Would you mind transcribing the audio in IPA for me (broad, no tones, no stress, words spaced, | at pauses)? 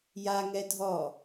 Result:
jaŋɛ dʱɔ